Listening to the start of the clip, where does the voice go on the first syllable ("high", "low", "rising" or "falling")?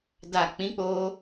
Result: low